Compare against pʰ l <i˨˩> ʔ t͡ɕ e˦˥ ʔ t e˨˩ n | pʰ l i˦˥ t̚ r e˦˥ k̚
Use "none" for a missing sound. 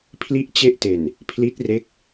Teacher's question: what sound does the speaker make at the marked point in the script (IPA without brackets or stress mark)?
i˦˥